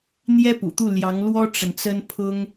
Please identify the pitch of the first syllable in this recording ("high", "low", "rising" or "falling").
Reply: high